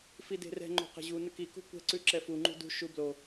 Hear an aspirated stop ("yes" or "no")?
no